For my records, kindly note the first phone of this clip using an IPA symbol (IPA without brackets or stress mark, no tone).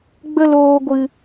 ɡ͡b